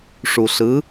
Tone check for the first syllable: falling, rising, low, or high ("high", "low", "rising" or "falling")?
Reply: low